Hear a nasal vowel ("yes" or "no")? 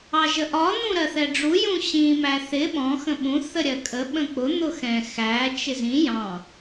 yes